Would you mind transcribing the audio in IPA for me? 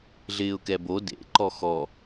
ɮ ɪː ʊ̯ k ɛ b o d ḛ ǃ ɔ x ɔ

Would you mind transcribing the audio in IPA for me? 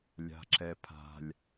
lʲ a̤ ǁ ɛ pʰ a̤ lʲ

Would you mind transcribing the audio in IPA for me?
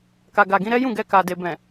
k a˨ ɡ a˨ ɡ ĩ˧ ɾ ɛ˦ j ũ˦˨ ɡ ɛ˧ k a˨ d e˨ b ɛ̃˨

